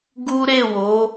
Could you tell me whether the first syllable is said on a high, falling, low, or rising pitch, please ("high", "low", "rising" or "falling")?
high